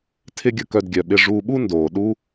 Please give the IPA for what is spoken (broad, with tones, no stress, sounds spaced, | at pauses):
tʰ ɪ˥ ɡʲ ə˧ k œ˧ d ɡʲ œ˩ ɓ ɪ˧ ʐ uː˧ ɓ u˥ n d oː˩ ɗ u˥